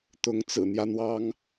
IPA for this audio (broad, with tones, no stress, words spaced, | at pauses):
t̪ʊ˨˦ŋ t͡sɹ̩˨˩n̪jä˦ n̪wɑ˦ŋ